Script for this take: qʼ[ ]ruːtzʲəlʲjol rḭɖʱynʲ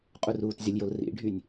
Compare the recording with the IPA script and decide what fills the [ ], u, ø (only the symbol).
u